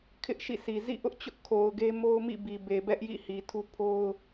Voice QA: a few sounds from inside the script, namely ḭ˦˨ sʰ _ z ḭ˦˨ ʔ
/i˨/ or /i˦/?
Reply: i˨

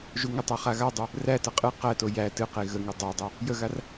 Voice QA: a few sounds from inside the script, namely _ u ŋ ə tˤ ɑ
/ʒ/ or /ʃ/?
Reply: ʒ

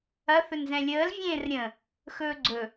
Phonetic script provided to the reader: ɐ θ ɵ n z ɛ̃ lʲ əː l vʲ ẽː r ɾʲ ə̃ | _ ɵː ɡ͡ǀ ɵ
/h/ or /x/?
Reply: x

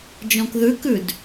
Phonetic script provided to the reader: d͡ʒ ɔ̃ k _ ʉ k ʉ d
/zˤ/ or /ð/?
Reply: ð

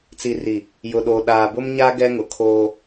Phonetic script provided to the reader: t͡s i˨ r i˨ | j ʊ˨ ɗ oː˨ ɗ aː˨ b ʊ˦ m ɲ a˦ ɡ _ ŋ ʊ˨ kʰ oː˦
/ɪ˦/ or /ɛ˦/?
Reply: ɛ˦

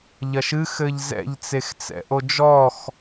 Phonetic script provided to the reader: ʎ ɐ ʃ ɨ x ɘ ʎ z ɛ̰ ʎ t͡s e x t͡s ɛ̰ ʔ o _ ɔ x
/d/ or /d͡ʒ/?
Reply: d͡ʒ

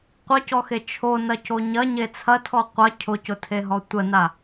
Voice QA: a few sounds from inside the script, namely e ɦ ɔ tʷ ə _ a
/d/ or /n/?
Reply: n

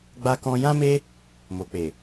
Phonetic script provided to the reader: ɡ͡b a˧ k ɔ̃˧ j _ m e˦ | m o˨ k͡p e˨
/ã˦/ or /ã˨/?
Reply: ã˦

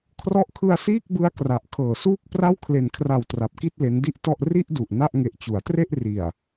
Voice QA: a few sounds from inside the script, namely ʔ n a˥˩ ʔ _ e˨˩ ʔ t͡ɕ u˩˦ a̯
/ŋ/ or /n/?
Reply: ŋ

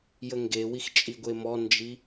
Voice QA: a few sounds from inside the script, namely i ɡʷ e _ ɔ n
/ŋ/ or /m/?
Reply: m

